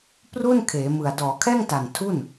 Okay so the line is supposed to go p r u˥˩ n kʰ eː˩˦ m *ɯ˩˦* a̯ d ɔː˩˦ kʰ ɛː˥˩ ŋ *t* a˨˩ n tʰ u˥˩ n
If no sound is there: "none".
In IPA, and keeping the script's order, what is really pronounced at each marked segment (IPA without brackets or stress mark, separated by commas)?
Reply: ɯ˨˩, t